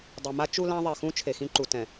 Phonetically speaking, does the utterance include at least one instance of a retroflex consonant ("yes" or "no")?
no